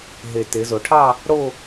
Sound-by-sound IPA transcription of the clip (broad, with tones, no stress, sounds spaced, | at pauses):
ɦ e˨˩ t e˩˧ z o˩˧ ʈʰ ɑ˥˧ | ɽ o˥˧